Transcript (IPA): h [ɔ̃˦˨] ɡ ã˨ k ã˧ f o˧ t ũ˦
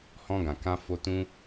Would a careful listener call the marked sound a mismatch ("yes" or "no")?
yes